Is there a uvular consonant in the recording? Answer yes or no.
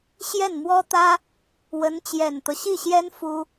no